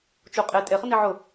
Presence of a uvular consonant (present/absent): present